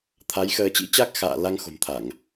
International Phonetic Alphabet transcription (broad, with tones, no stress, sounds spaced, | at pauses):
t̪ʰ a˨˦ j x əː˧ t͡ɕ ḭ˧˥ t͡ɕ a˦˥ k̚ x a̰ː˧˨ l a˧ ŋ x o̤˨˩ m t̪ʰ a˧˩˨ ŋ